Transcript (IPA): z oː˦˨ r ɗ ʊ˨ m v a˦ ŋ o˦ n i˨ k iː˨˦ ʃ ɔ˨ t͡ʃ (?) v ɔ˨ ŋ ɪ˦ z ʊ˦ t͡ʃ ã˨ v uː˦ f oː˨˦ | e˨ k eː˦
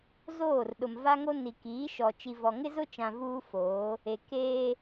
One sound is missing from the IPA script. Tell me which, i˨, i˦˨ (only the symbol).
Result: i˨